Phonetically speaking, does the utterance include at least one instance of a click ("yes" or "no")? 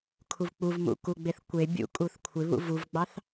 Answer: no